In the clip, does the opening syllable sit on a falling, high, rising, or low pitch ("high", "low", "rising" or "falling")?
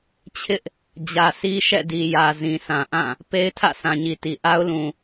high